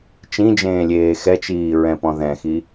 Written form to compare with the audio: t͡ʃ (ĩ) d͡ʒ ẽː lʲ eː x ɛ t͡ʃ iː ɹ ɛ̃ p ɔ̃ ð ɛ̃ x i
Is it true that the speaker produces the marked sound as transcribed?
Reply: yes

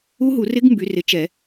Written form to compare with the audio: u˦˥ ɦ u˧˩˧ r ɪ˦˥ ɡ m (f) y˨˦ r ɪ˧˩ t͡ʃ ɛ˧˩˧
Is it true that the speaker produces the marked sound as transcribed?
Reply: no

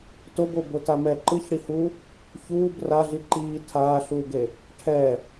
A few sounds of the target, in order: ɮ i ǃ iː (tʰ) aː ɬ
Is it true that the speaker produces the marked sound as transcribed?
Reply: yes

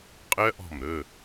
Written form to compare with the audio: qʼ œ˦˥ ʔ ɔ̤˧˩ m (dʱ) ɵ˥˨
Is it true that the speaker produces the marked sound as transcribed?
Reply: no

